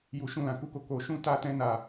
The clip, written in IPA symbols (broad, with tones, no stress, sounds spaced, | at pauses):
j u˧ ʃ ũ˦ l ã˧ k u˦ k o˦ k o˧ ʃ ũ˦ t a˦ t ɛ̃˦ n a˧